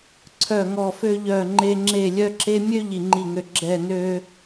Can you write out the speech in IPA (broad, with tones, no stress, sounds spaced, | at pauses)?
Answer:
ǀʰ œ˥˧ ŋ ɔ˥˧ f ø˥ ʎ œ˥˧ ŋ͡ǃ e˥ ŋ͡ǁ e˥˧ lʲ œ˥ ǁ e˥ mʲ ø˥ ʎ i˥˧ ŋ͡ǃ i˥˧ ŋ ø˥˧ ɡ͡ǁ ɛ˥˧ n ø˥